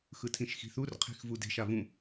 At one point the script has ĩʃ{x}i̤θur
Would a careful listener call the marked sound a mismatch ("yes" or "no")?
no